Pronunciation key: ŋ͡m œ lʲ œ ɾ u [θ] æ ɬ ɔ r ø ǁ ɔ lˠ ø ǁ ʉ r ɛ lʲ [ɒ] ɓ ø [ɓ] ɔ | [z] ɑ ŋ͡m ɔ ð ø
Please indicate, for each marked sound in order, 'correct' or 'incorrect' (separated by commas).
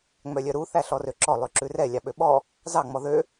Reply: correct, incorrect, correct, correct